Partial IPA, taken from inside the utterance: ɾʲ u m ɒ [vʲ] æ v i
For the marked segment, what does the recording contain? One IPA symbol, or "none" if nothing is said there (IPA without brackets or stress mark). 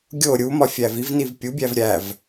fʲ